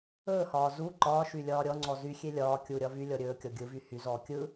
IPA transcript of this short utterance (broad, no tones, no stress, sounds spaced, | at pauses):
ɵː h ɒː z u ǃ ɒː ʃ y lʲ ɒː ɾʲ ɔ ŋ͡ǀ ɔ z y xʲ e lʲ ɒː kʲ u ɾʲ ɒ v y lʲ ɔ ɾʲ ɵː kʲ ɔ ɡʲ ɯ v y h y z ɔː kʲ ɯ